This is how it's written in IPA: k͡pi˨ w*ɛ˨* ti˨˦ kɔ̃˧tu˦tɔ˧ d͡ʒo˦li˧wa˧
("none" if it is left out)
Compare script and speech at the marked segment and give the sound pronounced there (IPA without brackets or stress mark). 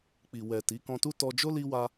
ɛ˨